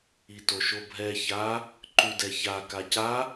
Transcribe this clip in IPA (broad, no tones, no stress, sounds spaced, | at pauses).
i t o ʃ o bʱ ɛ ç a | ǃ ʉ d ɛ ç a k a c a